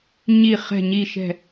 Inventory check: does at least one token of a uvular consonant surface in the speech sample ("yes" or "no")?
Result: yes